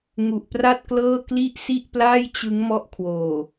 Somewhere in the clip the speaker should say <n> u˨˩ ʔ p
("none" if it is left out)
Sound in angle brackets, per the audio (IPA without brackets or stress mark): ŋ